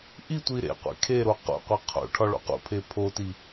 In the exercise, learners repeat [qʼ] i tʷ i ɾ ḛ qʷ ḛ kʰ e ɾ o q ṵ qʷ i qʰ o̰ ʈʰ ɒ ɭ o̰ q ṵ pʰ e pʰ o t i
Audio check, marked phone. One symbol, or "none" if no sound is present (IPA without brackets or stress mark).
ʔ